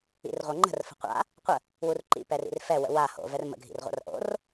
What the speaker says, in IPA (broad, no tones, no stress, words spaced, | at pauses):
ḭrʁʷɤŋ͡ǃə̤r fə̤qʷa̰ | qʷə | wurǃḭ pɛrḭrfɛ wə̰wa ho̰ vɛrmə̰ ɡʱḭrʁʷa̰rʔo̰r